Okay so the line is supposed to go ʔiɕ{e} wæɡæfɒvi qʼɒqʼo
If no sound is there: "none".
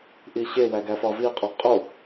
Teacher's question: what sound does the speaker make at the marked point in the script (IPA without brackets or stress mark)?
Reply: e